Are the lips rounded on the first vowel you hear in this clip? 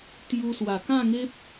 yes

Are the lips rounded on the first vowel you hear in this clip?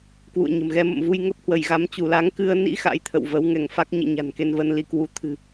yes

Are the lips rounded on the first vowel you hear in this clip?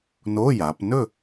yes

